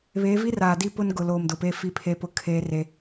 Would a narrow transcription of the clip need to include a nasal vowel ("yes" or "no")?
no